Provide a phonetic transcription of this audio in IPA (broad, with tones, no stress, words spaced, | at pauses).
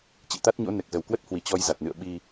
t͡ɕḭ˧˨t̪a˦˥t̚ɲo̰˧˥ nɛ˨˩k̚zə˨˩wkwə˦˥t̚hwi˨˩ t͡ɕɔ˧j za˨˩t̚nɨ̰˧˨ə̯ ɓi˧